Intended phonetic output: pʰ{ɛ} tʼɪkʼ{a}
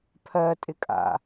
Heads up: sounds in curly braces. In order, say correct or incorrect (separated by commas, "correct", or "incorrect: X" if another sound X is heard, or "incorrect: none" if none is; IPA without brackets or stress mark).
incorrect: ɜ, incorrect: a̰